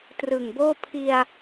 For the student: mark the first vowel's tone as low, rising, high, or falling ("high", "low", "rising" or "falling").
low